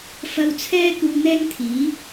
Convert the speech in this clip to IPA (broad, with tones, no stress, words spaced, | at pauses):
fɐ˧wt͡sʰɛː˥ kuː˧n̪ɛː˥ŋt̪ʰiː˨˥